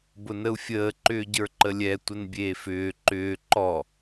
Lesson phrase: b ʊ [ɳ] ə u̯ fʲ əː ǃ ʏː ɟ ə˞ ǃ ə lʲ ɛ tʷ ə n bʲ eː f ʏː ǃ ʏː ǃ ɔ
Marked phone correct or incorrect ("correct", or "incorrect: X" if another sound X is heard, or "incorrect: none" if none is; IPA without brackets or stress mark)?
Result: incorrect: n